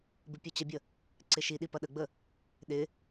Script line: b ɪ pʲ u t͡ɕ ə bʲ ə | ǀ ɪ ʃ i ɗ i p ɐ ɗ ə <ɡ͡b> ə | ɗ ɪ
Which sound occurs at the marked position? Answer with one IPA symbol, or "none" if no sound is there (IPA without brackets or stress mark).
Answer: ɡ͡b